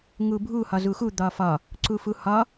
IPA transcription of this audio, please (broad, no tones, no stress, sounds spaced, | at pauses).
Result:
ŋ u bʱ u h ɒ z u x u d̪ ɒ f ɒ | ǀ u f u h ɒ